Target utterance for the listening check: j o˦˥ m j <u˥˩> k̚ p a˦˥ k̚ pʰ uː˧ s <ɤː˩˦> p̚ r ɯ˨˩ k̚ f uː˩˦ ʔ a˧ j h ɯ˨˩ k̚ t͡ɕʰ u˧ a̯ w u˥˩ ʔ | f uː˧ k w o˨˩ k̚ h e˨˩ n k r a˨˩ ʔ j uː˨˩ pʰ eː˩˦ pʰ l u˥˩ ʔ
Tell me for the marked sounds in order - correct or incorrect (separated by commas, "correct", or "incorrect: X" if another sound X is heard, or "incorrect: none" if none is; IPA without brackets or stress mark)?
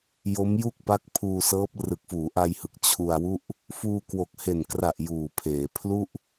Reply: correct, incorrect: ɤː˦˥